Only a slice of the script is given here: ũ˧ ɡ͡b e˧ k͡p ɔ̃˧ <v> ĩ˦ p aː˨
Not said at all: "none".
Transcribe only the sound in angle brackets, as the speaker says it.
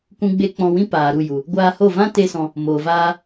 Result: w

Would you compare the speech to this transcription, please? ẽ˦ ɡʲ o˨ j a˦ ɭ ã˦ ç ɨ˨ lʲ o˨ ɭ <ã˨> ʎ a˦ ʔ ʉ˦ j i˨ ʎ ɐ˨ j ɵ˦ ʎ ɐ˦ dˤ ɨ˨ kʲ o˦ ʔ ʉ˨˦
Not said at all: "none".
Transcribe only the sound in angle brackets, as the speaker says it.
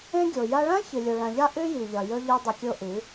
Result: ã˨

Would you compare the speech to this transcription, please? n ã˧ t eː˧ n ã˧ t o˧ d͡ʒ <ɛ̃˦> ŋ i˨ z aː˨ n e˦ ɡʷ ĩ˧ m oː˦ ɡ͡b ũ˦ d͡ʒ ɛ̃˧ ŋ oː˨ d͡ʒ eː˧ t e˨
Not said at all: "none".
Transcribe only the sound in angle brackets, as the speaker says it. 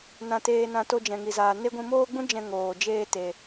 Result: ɛ̃˨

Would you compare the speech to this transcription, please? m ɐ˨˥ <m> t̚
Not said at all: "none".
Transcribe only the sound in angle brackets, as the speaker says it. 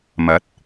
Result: none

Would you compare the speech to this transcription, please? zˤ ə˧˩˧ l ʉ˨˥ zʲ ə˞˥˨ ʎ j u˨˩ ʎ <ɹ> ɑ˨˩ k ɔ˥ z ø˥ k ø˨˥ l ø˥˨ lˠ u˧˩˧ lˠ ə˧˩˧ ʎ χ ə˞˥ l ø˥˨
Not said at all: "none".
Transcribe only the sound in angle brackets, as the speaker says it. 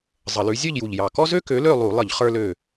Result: j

